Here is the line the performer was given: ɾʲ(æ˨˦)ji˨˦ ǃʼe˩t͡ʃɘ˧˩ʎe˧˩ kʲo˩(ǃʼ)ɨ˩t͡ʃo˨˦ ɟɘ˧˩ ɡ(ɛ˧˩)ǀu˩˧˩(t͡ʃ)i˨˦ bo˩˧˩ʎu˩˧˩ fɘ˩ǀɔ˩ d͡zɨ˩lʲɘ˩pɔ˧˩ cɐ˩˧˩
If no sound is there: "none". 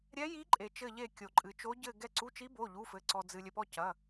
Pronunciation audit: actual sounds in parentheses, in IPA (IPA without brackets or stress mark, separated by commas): ɛ˨˦, ǃʼ, ɛ˧˩, t͡ʃ